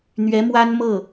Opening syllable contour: rising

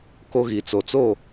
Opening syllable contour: high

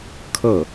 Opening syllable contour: falling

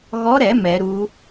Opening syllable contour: rising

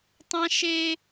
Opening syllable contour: high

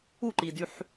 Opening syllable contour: falling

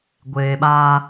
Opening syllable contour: low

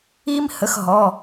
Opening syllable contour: high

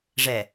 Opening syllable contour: low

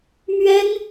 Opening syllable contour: high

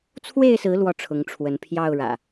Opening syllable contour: falling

